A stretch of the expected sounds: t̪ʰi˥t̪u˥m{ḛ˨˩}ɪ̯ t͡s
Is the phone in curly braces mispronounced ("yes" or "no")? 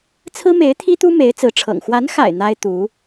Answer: yes